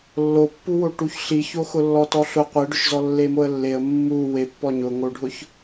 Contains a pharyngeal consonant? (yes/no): no